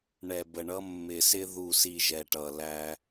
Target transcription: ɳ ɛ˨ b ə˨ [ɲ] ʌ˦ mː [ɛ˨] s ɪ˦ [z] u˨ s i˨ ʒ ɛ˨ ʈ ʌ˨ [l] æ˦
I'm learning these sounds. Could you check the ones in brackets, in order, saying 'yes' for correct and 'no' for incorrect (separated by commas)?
no, no, no, yes